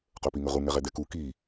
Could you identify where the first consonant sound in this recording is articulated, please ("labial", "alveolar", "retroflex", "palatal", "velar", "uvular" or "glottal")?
uvular